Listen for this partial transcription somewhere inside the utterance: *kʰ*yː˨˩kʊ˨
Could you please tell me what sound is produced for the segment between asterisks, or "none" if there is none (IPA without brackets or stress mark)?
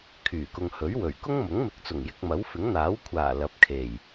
kʰ